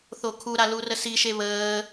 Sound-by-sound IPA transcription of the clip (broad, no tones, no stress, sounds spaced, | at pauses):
θ o kʰ u ɾ a l u r ə s i ʃ e β əː